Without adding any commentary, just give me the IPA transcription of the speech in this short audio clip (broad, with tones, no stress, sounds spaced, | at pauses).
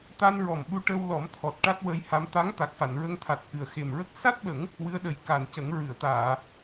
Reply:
t̪ a˧ n ɹ ɔ˨˩ m ɓ u˧ ʈ ə˧ w l ɔ˨˩˦ m t̪ʰ ɔ˨˩ t̚ ʈ a˦˥ t̚ w ə˧ j h a˧ m t̪ a˧˥ ŋ t̪ a˨˩ k̚ f a˨˩˨ n ɹ ə˧ ŋ t̪ʰ a˨˩ t̚ ʔ ɨ˨˩ ə̯ x e˨˩ m ɹ ə˦˥ k̚ s a˦˥ t̚ ɓ ə˨˩˦ ŋ | w ɨ˧˥ ə̯ ɗ ə˨˩˦ j k a˨˩ n c ə˨˩˦ ŋ ɹ ɨ˨˩˨ ə̯ t̪ aː˨˩˨